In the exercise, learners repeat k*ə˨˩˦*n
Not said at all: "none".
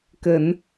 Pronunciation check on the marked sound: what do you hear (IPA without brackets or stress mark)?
ə˨˩˦